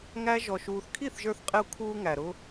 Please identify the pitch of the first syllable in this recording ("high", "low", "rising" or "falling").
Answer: high